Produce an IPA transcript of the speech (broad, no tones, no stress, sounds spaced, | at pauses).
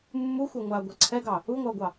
mː u xʷ a ŋʷ a ɡʷ ɛ ǀʰ ɛ ɡ ɑ | u ŋʷ a o̯ ɡʷ ɑ